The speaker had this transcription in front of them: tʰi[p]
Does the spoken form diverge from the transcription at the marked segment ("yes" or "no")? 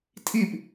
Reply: no